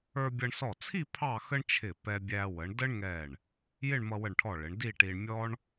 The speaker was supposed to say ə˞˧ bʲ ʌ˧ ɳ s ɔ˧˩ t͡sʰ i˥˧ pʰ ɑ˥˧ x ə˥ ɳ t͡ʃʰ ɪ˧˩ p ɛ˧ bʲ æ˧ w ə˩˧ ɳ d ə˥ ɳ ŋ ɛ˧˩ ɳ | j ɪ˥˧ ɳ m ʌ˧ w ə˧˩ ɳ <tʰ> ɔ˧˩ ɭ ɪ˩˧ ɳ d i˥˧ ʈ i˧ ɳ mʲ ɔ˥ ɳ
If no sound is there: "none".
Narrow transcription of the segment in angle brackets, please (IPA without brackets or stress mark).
ʈʰ